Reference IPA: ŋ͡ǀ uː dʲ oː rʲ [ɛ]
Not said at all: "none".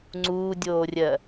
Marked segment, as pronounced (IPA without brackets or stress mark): ɜ